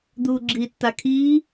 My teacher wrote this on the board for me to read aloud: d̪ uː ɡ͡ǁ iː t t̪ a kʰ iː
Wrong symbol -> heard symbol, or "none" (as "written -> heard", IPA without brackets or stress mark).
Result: none